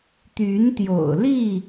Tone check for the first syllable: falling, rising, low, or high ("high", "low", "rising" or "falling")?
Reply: rising